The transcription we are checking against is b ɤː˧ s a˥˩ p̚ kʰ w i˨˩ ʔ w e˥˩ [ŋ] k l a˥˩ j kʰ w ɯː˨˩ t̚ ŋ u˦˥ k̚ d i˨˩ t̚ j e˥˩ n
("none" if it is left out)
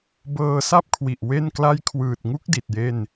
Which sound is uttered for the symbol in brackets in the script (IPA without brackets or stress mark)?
n